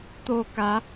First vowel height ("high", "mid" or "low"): mid